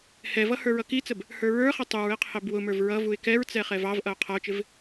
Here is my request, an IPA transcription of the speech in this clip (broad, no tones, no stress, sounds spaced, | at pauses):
h ɛ v ʌ h ə˞ ɹ ʌ k i t͡s ə b | h ə˞ ɹ ə˞ χ ɪ tˤ u ɹ ɪ qʰ ɪ b w ʊ m ə˞ v ɹ ʌ v u ɪ̯ k ɛ ɹ t͡s ɛ χ ɛ v ɑ v ʔ ʌ ʊ̯ qʰ ʌ ʊ̯ t͡ʃ ɪ v